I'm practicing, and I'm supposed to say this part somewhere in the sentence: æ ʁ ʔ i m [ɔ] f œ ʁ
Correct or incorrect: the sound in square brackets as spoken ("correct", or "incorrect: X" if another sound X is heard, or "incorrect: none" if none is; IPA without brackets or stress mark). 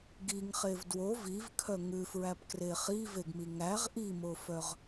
incorrect: o